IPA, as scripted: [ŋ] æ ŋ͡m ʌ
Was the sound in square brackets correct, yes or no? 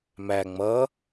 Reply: no